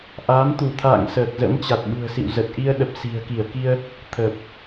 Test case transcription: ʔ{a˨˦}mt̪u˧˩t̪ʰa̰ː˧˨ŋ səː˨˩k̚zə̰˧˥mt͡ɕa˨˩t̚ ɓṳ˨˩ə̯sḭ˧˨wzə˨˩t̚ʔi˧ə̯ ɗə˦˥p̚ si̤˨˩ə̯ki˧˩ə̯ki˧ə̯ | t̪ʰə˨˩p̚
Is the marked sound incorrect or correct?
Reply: incorrect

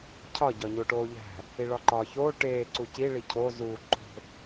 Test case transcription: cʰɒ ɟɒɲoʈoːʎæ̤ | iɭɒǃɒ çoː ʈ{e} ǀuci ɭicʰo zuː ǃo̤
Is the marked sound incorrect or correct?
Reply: incorrect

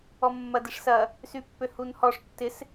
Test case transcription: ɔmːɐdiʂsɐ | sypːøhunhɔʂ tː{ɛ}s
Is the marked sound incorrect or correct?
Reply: incorrect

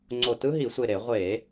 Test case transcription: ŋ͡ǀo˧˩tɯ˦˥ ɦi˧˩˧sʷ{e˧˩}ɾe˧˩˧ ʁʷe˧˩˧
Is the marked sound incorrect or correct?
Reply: correct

